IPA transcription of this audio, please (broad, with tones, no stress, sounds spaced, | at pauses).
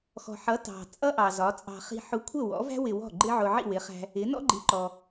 x ɔ̤˩ ħ ʌ˩˥ t ɑ̤˩ t͡sʼ ʌ˥ ʔ ɑ˩ z ɒ˩˥ t͡sʼ ɑ̤˧ χ i̤˧ ħ ʊ˧ kʷʰ ə˥˩ w ɔ̰˩˥ v æ̤˥ w ɪ˧ w ɔ̤˥˩ ɡ͡ǃ ɪ˥ ʕ ʊ˧ ʕ ḭ˥˩ w ɪ˩˥ χ æ̤˧ | ɪ˩˥ n ɔ̰˥ ɡ͡ǃ i˩˥ ǃ ɔ˩